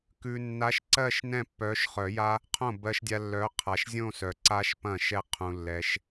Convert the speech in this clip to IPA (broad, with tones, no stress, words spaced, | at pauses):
kʉ˨ nːa˨˥ʃǀɜ˥˧ʃ nɛ̃˥˧pːœ˨˥ʃ χœ˨˩˦ja˦˥ | qʰõ˥˩ bɜ˦˥ʃdʲa˦˥ lːœ˨˥ qʰa˨ʃzʲõ˥˧sœ˨ ǀa˦˥ʃpɐ̃˥˩ ʃɛ˥˧ qʰũ˨lːɛ˨ʃ